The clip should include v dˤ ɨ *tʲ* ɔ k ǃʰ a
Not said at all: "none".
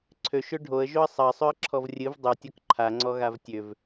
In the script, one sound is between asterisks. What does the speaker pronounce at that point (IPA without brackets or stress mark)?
tʲ